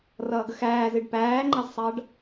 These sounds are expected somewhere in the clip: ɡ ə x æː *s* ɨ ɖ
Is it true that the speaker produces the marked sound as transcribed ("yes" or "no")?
no